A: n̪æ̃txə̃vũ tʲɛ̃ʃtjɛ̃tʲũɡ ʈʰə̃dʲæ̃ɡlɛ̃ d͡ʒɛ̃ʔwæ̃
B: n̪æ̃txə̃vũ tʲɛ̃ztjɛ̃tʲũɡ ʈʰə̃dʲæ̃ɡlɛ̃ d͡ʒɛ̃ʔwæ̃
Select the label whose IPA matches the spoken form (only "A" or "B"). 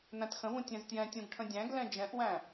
B